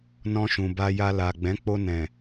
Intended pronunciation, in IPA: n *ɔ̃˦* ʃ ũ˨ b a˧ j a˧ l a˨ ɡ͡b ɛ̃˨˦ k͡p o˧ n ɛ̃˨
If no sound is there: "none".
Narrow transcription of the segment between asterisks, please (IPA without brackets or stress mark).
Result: ɔ̃˧